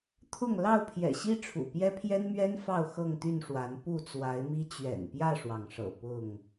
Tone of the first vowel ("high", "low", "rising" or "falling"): falling